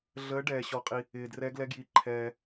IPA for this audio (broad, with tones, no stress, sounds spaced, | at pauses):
ɮ əː˨˦ ɖ ɛː˩ ɕ ɔ˩ qʼ i˩ | ɪː˩ d r ɛ˨˦ ɡ l ɛ˨˦ ɡ j i˩ ǃʰ ɛː˩